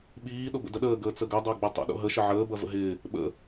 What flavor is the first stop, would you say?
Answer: implosive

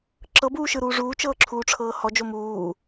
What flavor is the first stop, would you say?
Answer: click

